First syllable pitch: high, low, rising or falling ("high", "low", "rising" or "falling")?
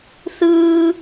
high